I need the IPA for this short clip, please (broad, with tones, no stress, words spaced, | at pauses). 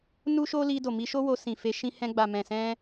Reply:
nu˦ʃo˦li˧ do˨mi˧ʃo˦wo˧ sĩ˨fe˧ ʃĩ˧hɛ̃˧ɡ͡ba˨ mɛ̃˨sɛ̃˧